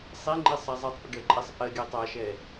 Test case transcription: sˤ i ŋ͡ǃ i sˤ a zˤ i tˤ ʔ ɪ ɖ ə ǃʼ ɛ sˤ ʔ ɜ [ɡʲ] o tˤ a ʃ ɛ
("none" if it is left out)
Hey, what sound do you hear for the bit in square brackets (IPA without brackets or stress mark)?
ɡʲ